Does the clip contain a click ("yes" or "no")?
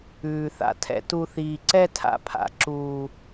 yes